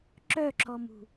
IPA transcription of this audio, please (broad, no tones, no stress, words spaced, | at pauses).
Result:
ǁœǁɔmṳ